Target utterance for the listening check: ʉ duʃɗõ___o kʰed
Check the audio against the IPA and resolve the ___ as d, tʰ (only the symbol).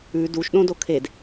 d